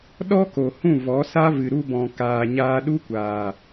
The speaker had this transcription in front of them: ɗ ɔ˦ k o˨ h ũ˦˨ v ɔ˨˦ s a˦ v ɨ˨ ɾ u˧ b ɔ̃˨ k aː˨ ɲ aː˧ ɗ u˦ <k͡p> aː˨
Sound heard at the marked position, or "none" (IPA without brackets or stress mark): kʷ